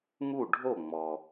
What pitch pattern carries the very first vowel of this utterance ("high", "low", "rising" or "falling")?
falling